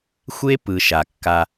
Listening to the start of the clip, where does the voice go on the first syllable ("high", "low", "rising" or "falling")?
high